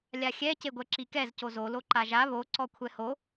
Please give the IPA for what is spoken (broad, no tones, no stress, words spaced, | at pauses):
lʲaxʲɛ ceɡʷɛǁikɛz cozo loǃaʒa βo ǀɔkʷʰɛho